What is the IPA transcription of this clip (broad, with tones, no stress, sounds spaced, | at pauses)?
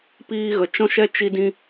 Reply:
p iː˦ ɣ ə˧ t͡ʃ ɔ̃˦ ʃ ɛ˦ t͡ʃ i˦ d ĩ˦